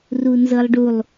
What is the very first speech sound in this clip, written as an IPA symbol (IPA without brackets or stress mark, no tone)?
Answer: r